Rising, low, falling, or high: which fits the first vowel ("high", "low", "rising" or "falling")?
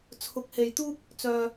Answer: rising